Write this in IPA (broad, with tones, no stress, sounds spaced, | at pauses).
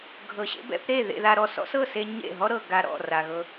ɡʱ ɤ˨ ɕ ḛ˧ b ɛ̰˧ p ɾ e˦˨ ð ḛ˧ ð a˧ ɾ ɔ˧ s ɔ̰˦ s ɤ˦˨ s e˧ ɲ ḛ˦˨ ɦ ɔ˦ ɾ ɤ˨ ɡ a˧ ɾ ɔ̰˦˨ r a˨ ɣ ɤ˧